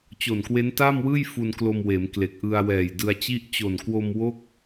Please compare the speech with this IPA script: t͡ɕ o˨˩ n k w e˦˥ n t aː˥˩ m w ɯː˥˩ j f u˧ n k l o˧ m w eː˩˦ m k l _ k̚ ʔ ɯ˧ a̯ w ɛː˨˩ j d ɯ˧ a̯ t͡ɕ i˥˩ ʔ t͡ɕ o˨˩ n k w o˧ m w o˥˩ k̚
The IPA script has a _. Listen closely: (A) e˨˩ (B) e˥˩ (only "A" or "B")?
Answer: A